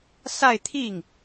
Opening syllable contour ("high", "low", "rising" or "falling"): falling